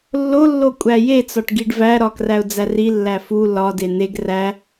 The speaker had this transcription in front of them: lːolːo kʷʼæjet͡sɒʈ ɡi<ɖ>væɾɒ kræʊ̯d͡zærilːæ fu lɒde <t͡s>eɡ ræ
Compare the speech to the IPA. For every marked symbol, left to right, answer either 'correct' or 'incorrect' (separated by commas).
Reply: correct, incorrect